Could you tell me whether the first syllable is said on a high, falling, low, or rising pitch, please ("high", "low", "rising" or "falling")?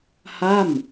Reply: falling